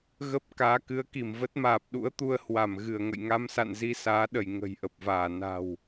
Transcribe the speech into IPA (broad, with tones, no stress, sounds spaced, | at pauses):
ɣ ə˦˥ p̚ k aː˨˦ k ɨ˨˦ ə̯ k i˧˩ m v ə˦˥ t̚ m aː˨˩ p̚ ɗ ṵ˧˥ ə̯ t̪ u˧ ə̯ h w a˧˩ m ɣ ɨ˧˩ ə̯ ŋ ə̰˧˨ j ŋ a˧ m s a̰˧˨ n z i˧ s aː˨˦ ɗ ə˧˩ j ŋ ə̤˨˩ j ʔ ə˨˩ p̚ v aː˧˩ n a̤˨˩ w